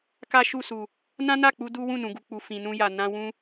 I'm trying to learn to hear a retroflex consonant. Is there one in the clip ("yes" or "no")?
no